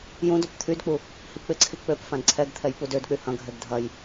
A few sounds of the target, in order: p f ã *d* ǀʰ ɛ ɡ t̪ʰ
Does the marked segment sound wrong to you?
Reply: no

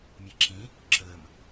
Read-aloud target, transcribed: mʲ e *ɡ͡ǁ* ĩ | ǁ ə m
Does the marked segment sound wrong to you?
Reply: yes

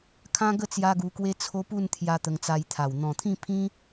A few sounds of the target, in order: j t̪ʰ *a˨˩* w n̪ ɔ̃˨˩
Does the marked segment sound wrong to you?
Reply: no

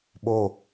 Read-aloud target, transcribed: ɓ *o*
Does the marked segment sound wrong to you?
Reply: no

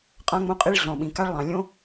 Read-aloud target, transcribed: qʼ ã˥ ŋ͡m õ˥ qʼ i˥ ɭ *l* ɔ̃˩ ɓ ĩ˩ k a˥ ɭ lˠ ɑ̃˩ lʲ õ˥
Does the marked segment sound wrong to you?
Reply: yes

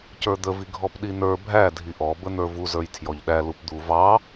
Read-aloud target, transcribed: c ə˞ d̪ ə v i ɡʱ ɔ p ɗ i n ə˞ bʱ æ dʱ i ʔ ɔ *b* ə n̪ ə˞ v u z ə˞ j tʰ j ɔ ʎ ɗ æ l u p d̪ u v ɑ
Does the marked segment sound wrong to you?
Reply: no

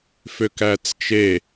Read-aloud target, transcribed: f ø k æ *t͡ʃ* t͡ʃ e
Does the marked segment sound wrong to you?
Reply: yes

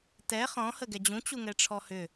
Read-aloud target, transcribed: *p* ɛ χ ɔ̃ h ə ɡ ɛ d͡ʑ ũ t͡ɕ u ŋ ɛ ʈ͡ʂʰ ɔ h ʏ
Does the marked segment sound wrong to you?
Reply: yes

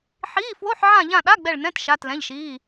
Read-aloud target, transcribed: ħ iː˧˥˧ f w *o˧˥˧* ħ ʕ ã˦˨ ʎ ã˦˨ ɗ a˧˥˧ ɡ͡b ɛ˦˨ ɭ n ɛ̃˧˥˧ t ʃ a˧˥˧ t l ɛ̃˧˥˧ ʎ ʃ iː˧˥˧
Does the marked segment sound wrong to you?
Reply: no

